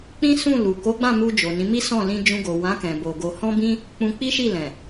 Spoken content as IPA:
k͡p ĩ˦ s ũ˦˨ l u˨ k o˨˦ ɡ͡b ã˦˨ m u˧ d͡ʒ o˨ n ĩ˨˦ m i˦ s ɔ̃˦˨ l ĩ˧ d͡ʒ ũ˧ ɡ o˨ w ã˨˦ k ɛ̃˧ b o˧ ɡ o˧ h ɔ̃˦ b ĩ˦ | k͡p ũ˧ k͡p i˦ ʃ i˦˨ l ɛ̃˨

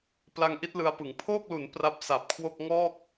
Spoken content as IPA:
p l a˧ ŋ ʔ i˦˥ t̚ l ɯ˧ a̯ p ɯ˩˦ ŋ pʰ oː˥˩ k̚ l u˩˦ n p r a˦˥ p̚ s a˨˩ p̚ kʰ w o˥˩ k̚ ŋ ɔː˥˩ k̚

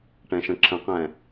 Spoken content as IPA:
ʈ ɛ̃ ʃ ə̃ ǁʰ ə̃ q ɛ̃

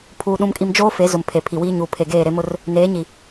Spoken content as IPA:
pʰ uː˦ ɗ ũ˦ m kʼ i˦ m d͡ʒ oː˦ f e˨˦ z ʊ˨ m pʰ e˨ pʰ i˨ w iː˦ ɲ uː˨ pʰ e˨ ɡ eː˦˨ ɾ e˦ m ʊ˦ r | n eː˨˦ ɲ i˨

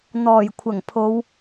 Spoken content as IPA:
n̪ ɔː˨˩ j kʷʰ ɐ˨˩ ŋ pʰ o˨˧ w

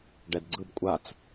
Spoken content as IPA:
ɖ ɛ d ɡ͡ǀ ɯ b kʷʼ a t͡s

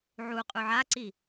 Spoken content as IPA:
ʕ u qʼ u ʕ a ǀ i

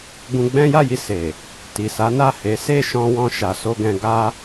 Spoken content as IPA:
ɡ ũ˧ ɡ͡b ɛ̃˦ j a˦˨ j i˧ s e˨ | t i˨ s a˨˦ n a˦˨ h e˨˦ s e˦˨ ʃ ɔ̃˧ w ɔ̃˧ ʃ a˨ s o˧ ɡ ɛ̃˧ ɡ a˦

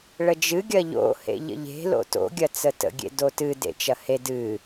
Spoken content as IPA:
ɭ ə d͡ʒ ɨ ɡʲ ɐ ʎ o̰ h ḛ ʎ ə̰ ʎ e̤ l o̰ t o̰ ɡʲ ɐ t͡s ə t ə̰ ɡʲ ḛ d o t ɨ d ḛ t͡ʃ ɐ h e d ɨ

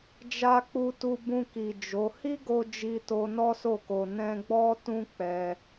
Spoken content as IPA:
d͡ʒ a˧ k͡p u˧ t u˧ b ũ˧ k i˨ d͡ʒ o˨˦ h i˦ ɡ o˧ d͡ʒ i˧ t o˧ n ɔ˦ s o˦˨ k o˧ n ɛ̃˦ ɡ͡b ɔ˦ t ũ˦ k͡p ɛ˧

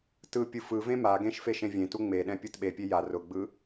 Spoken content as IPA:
t ɯ pʲ ɯ f ɯ v ẽ m a ɡ ẽ ʃ f e ʃ ẽ vʲ ẽ t u ŋ͡m e ɗ ɛ̃ pʲ ɯ t ɓ e pʲ e j a r ʊ ɡ͡b ɯ

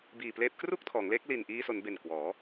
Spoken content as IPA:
b iː˨˩ p l eː˦˥ p̚ k r u˥˩ k̚ tʰ ɔː˩˦ ŋ l e˦˥ k̚ l i˨˩ n ʔ iː˧ s o˩˦ n b e˨˩ n k w ɔː˩˦

